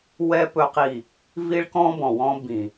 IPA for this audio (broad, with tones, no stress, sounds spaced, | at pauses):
w ɛ˦ p ɵ˦ q i˦˨ | v i˦ ɭ k ɔ̃˦ b ɔ̃˨ w ɔ̃˦ b ĩ˨